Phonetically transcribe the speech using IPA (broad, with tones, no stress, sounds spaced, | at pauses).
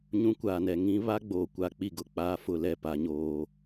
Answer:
ɲ ũ˦ kʷ aː˨ n ɛ˨ ŋ ĩ˦ β a˦ ɡ͡b oː˨ kʷ a˨ k͡p i˦˨ ɡ ʊ˦˨ k͡p aː˦ f ʊ˦˨ l ɛ˦˨ p a˦ ɲ oː˦